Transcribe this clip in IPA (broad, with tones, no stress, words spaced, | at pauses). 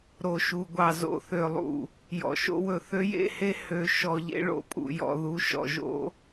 ɾo˨ʃu˨ɡʷɑ˨ zo̰˨θø˨lˠṵ˨ | jɔ̰˨ʃo̰˦wɵ˨ θø˦jḛ˦˨he˦ hø˨ ʃɔ˨ʎḛ˦ ɭo̰˨pʼṵ˨jɔ̰˨ ðu˨ ʃɔ̰˨ʒo̰˦